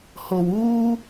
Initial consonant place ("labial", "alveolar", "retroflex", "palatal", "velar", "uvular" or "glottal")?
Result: glottal